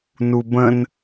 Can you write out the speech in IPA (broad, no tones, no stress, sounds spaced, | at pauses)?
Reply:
n u b ə̃ n